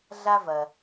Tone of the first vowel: high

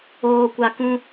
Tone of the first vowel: low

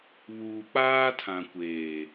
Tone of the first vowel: low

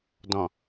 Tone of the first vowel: low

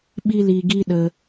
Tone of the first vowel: high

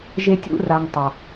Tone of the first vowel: high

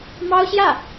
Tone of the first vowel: high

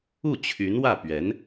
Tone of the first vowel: falling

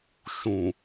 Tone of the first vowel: low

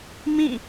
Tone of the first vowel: falling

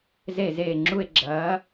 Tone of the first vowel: falling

